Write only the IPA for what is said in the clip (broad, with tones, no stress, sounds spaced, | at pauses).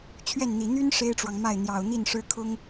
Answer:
t͡ɕʰ ɥ ɛ˥˩ n n̪ i˨˩ n̪ y˥ n ʂ e˥ ɪ̯ ʈ͡ʂ w ɑ˨ ŋ m a˥˩ ɪ̯ n̪ j ɑ˨˩ ʊ̯ n̪ i˥˩ n ʂ ɻ̩˥ kʰ ʊ˥ ŋ